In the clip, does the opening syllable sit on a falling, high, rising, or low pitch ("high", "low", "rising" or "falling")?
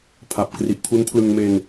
low